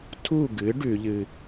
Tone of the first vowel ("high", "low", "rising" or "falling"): falling